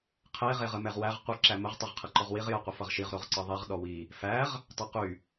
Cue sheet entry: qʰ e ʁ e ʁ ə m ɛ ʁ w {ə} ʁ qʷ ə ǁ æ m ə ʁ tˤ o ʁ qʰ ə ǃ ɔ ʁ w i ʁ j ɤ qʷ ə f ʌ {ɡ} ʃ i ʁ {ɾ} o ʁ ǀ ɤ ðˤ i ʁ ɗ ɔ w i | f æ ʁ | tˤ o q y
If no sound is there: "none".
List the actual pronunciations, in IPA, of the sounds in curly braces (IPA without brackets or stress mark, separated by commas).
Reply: æ, ʁ, ɾ